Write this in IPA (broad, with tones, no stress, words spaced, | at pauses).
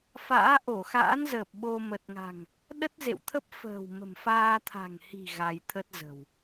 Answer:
fa̰ː˧˥ ʔo˧˩xa̰˧˥nzəː˨˩p̚ ɓo˧ mə˨˩t̚ŋa̤˨˩ŋ | ɗə˦˥t̚zḛ˧˨wt̪ʰə˦˥p̚ fə̤ː˨˩w mə̤˨˩mfaː˧ t̪ʰa̤˨˩ŋhi̤˨˩ ɣa˧j t̪ʰə˦˥t̚zə̤˨˩w